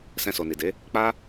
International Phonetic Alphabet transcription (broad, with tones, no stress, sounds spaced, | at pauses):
s ɛ̃˧ s o˨ n i˨ d e˨˦ | k͡p a˦